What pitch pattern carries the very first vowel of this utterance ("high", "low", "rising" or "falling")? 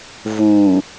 low